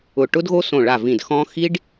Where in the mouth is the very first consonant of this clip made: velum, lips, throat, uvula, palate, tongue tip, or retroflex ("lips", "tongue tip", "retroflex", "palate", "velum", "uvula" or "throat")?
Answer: retroflex